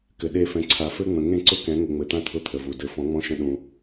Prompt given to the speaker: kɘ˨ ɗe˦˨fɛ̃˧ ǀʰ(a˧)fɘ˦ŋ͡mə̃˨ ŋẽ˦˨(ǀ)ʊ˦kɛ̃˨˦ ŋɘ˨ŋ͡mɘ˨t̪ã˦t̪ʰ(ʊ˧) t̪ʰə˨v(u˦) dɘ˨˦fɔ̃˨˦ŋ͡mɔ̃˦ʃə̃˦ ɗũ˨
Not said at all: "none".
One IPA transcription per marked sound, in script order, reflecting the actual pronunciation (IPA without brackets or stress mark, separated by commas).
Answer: a˨, ǀ, ʊ˧, u˨